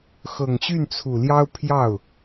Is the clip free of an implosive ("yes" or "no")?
yes